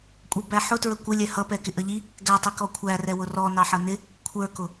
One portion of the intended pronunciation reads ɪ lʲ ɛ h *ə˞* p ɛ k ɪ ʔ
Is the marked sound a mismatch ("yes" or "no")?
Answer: yes